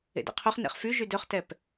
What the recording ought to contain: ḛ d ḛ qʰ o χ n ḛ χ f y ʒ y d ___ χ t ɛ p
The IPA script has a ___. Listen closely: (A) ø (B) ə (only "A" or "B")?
A